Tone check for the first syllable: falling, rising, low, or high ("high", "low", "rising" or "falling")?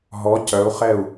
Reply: rising